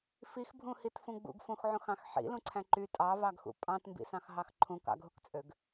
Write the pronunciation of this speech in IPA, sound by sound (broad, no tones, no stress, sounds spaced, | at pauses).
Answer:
f i x bʱ ũ h i t f ũ ɡ͡b ṵ ɡ f ũ x ʕ ũ x ɑ̃ x ħ ḭ l ũ ǀʰ æ̃ ǃ y tʼ ɑ v ɑ ɡ x ṵ pʼ ɑ̃ t m b ḭ s ɑ̃ x ɦ ɑ x ǃʰ ũ k ɑ̰ ɡ ɦ u k t͡sʼ ø ɡ